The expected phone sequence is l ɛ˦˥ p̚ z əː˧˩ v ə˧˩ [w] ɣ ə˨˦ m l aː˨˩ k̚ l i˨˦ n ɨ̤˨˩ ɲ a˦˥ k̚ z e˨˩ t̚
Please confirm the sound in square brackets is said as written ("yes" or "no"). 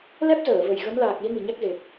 no